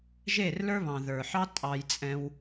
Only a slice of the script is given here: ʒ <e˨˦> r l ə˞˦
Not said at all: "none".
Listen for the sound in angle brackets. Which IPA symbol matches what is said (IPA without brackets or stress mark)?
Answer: e˦˨